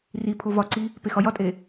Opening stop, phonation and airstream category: aspirated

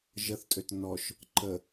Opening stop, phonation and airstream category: ejective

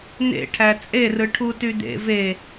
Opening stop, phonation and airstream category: aspirated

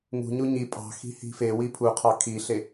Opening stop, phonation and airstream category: ejective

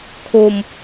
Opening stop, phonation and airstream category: aspirated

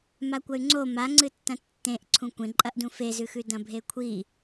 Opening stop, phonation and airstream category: plain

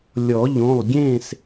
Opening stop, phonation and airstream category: plain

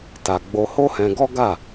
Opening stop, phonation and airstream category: plain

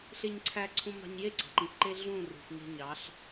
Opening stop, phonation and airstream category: click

